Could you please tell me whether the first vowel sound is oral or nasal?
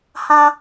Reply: nasal